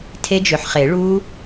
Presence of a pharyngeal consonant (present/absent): present